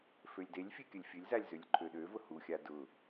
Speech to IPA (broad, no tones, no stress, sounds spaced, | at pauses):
f ø lʲ d e lʲ fʲ e kʲ ə lʲ fʲ ø lʲ z a lʲ z ø lʲ ǃʰ ø ɗ ø v ʊ h u xʲ a d ʊ